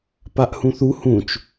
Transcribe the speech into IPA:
p a ʔ h ũ θ u h ũ t͡ʃ

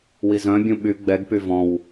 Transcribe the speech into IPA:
w i z œ̃ bʲ ũ ɓ y ɡ͡b ɛ ɡ p y v ɔ̃ w

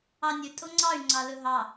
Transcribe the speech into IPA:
ɑ nʲ ɵ tʼ o ŋ͡ǀ ɑ y̯ ŋ͡ǀ ɑ l ɵ ɦ ɑ

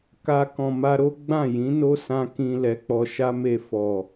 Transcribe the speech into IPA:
k a˧ k ɔ̃˨ m a˧ ɾ o˦ ɡ͡b ã˦˨ j ĩ˨˦ n o˦ s ã˧ k ĩ˨ l ɛ˨˦ k͡p ɔ˧ ʃ a˦ m e˧ f ɔ˨

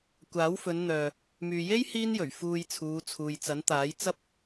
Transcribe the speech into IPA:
kʷ aː˨˥ w f ɵ˨˧ n n̪ œː˨ | m yː˨ j e˥ j h iː˥ n j ɵ˨˩ ɥ f uː˧ j t͡sʰ uː˨˧ t͡sʰ uː˨ j t͡s ɐ˨˥ n t̪ aː˨˥ j t͡s ɐ˥ p̚

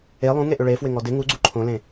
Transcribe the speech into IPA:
e lˠ ũ ŋ e ʔ ʏ ɭ e f w ɪ ŋ ɔ d ɪ ŋ u ɡ͡ǀ u ǃʰ õ l ẽ

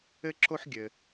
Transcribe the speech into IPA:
ɘ˥ ǁ o˥ ħ ɡʲ ɘ˩

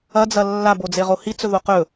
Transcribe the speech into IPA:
ɐ d͡z ɐ lː a b o d͡z e ʁ o h i t͡s ɵ ð o q ɵ

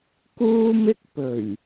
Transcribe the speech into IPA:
k uː˥ m ɪ˥ k̚ p ɵ˨˩ ɥ

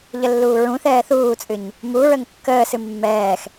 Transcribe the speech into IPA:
ʎ ə lː uː ɹ ũ θ ɛː θ uː t͡sʼ ɨ ɲ | m u ɹ ə ŋ kː əː s ɨ mː ɛː x

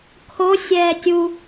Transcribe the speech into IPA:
kʰ o sʲ ɛː tʲ u

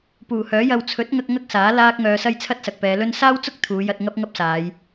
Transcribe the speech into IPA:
p uː˨˩ h œː˨˥ j ɐ˧ w t͡sʰ ɵ˨˥ t̚ ŋ ɐ˧ k̚ ŋ ɐ˥ k̚ s aː˨˥ l aː˥ k̚ ŋ œː˧ s ɐ˥ j t͡sʰ ɐ˥ t̚ s ɐ˨ k̚ p ɛː˨˧ l ɵ˥ n s aː˥ w t͡s ʊ˥ k̚ t̪ʰ uː˨˧ j ɐ˧ t̚ ŋ ɐ˥ p̚ ŋ ɐ˥ p̚ s aː˨˧ j

